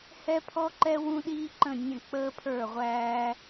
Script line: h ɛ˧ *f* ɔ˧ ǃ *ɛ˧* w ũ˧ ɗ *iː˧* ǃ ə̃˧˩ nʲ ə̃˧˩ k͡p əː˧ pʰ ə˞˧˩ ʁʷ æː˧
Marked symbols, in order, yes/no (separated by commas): no, yes, yes